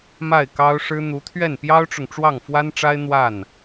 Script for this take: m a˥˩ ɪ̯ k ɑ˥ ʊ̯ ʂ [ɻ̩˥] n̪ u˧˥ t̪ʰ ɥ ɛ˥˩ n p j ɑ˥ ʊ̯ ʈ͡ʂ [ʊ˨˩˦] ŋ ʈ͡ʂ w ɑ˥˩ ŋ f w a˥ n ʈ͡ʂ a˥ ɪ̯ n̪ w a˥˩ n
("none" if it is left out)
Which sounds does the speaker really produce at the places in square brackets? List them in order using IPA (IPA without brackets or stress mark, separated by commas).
ɻ̩˥, ʊ˨